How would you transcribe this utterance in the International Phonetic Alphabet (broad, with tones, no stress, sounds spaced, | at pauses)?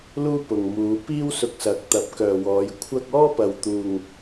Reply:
l uː˥ p ʊ˨ ŋ m uː˨˧ p iː˥ w s ʊ˧ k̚ s ɐ˨˥ k̚ t̪ ɐ˨˥ p̚ k œː˨ w ɔː˨˧ j kʷʰ ɐ˥ k̚ ɔː˥ p ɐ˨ w t̪ uː˨ ŋ